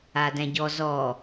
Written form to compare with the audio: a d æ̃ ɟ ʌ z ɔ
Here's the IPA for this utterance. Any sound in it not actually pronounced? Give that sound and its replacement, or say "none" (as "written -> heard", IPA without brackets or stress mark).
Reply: ʌ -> ɔ